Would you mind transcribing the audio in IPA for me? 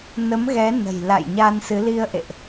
n ə˨˦ m ɣ ɛ˨˦ n ə̤˨˩ j l a̰˧˨ j ɲ a˧ n s ɨ˨˦ l i˧ ə̯ ʔ ḛ˧˨ ʔ

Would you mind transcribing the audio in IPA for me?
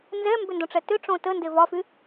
n z ɛ m b ʏ n d õ ʈ͡ʂ ɛ t ʏ ʈ͡ʂ õ t ə n d e v ɒ f y

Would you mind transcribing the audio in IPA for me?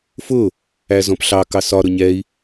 f ʊ | æ z ɔ̃ p ɬ ɑ k ɑ s ɒ ɾ ʊ ɲ ɛ i̯

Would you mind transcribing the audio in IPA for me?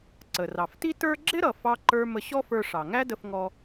ǀ ə˩ r ɑ˩ f t i˥ t ə˞˥ ɡ͡ǁ ɪ˥ ɾ ʌ˩ f ɑ˧ ǃ ə˞˧ m ə˧ ɕ ɔ˥ f ə˞˧ ʂ ɑ˩ ŋ æ˥ d ə˧ f ŋ ɔ˧

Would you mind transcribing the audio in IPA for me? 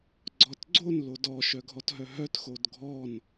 ɡ͡ǀ ɔ t ɡ͡ǀ o n l o d ɔ ʃ œ ɡʱ ɔ t ɦ œ ɦ œ t x o d ɡʱ ɔ n

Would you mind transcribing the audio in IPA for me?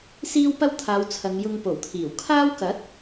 s iː˥ w p ɐ˥ w t̪ʰ aː˨˧ w t͡sʰ ɐ˨˧ ŋ j ʊ˧ ŋ p o˨˩ w t̪ʰ iː˨˩ w kʰ aː˥ w k ɐ˨˥ t̚

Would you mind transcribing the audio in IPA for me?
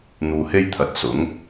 n̪ uː˨ h e˥ j t̪ʰ ɐ˨˥ t̚ s ʊ˨˥ ŋ

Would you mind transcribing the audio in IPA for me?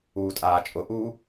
uː tʼ aː t͡ʃʼ ʊ ʔ uː

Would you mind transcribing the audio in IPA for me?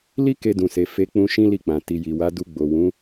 l i˦ k e˧ d ũ˨ s e˨ f e˨˦ k͡p ũ˧ ʃ ĩ˦ l i˦˨ k͡p ã˨ t i˨ j i˨ w a˨˦ d u˧ ɡ͡b o˨ w ũ˨˦

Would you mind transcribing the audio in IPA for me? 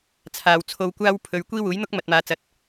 t͡sʰ aː˨ w t͡sʰ o˧ w kʷ aː˥ w pʰ ɵ˨ ɥ kʷ iː˥ w uː˨˥ j n̪ ʊ˥ k̚ m ɐ˨ t̚ m aː˨˧ t͡s ɐ˨ t̚

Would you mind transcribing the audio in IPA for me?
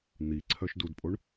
n̪ i ǀʰ œ ʃ d u d pʼ o ɳ

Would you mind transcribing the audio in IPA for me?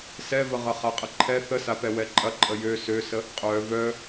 s ɛ v ə ʁ ɐ χ a qʼ ə ǃʰ ɛ θ ə s a p ɛ w ɛ ǃʼ ɐ ǃʼ ə j ø s ø s ə | qʼ œ v œ

